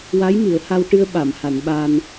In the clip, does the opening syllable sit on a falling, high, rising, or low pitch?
rising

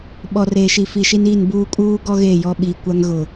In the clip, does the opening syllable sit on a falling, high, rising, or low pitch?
low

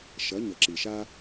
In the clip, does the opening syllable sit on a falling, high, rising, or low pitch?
rising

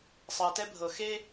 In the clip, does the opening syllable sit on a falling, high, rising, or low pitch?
low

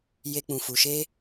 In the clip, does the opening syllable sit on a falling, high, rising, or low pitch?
high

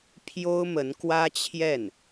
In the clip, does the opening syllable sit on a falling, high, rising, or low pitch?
high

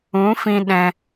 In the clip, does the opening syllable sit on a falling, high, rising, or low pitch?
rising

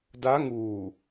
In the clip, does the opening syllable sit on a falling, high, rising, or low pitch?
rising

